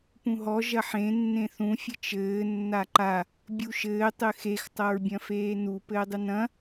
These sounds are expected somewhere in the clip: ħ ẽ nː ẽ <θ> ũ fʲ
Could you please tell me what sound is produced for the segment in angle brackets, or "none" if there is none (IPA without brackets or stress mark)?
θ